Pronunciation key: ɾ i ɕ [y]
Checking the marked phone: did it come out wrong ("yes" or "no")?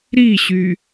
no